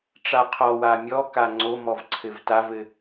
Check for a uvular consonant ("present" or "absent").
present